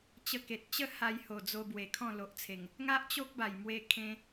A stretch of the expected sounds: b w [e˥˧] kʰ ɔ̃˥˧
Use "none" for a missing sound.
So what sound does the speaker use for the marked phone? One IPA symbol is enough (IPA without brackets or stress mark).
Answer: e˨˩